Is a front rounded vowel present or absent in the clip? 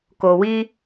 absent